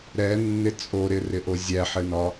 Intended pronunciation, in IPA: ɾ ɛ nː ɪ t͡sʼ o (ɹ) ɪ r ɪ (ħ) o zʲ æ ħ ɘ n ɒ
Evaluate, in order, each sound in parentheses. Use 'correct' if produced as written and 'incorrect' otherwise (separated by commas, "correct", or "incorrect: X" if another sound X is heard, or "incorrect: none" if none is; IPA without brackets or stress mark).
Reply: incorrect: ɾ, incorrect: ʔ